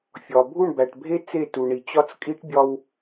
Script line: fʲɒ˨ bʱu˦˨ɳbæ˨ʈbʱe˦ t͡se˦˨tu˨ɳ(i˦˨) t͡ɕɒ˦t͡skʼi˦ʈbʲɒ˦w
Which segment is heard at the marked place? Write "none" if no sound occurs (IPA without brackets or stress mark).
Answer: i˨